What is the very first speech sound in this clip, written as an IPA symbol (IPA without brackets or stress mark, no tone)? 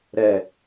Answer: ɾ